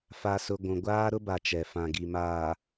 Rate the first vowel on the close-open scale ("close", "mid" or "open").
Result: open